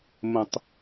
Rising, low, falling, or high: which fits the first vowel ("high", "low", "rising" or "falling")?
low